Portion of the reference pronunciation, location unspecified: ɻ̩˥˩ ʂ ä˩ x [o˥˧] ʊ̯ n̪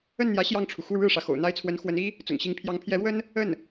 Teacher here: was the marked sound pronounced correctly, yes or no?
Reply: no